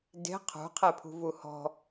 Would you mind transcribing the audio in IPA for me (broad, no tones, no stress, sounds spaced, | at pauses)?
d e̤ qʰ ṳ qʰ ɛ pʰ ṳ v u h ɔ̤